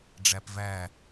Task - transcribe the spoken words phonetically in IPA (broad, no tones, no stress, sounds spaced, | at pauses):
ɖ͡ʐ æ p v æ